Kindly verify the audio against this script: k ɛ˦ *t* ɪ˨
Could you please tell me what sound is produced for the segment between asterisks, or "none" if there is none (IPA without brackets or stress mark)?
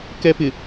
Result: p